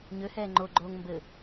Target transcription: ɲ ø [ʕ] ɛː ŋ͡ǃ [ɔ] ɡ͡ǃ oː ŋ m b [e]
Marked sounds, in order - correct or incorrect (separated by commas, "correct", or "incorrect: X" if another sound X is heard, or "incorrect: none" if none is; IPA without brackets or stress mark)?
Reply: incorrect: h, incorrect: o, incorrect: ɘ